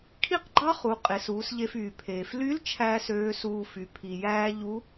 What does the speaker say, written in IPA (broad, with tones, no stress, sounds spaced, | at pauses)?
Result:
kʰ i˥ q ɡ͡ǃ ɑ˥ χ u˩˧ qʼ e˩˧ s uː˩˧ s ʎ e˧ f yː˩ pʰ eː˩ f l y˧˥ l t͡ʃʰ æː˥ s øː˧˥ s uː˧ f y˩˧ pʰ i˩ j æː˥ ʎ u˧˥